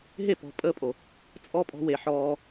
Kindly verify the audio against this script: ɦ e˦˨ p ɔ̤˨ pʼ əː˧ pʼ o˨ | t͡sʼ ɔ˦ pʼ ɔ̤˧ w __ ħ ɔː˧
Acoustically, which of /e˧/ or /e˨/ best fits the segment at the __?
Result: e˨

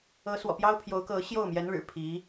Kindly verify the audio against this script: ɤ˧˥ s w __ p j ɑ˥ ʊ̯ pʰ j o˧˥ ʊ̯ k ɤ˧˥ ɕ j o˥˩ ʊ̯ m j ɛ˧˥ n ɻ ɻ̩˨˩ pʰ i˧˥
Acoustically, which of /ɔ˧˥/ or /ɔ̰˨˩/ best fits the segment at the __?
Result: ɔ̰˨˩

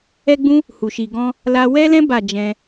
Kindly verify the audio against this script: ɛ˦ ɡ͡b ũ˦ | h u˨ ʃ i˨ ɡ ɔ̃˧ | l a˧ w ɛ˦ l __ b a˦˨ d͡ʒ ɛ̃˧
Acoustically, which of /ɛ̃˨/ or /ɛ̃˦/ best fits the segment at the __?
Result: ɛ̃˦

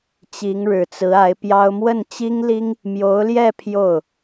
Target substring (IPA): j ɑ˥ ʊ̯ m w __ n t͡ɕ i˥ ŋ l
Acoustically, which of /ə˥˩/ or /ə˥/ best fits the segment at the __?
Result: ə˥˩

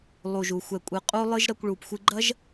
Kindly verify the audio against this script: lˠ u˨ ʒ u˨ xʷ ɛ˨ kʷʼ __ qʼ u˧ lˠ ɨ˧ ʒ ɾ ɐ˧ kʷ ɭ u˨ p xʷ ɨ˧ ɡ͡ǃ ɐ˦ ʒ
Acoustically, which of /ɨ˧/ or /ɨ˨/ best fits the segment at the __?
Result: ɨ˨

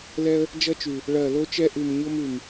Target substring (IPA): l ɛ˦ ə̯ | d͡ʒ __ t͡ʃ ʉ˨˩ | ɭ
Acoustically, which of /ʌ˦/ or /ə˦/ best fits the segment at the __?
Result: ʌ˦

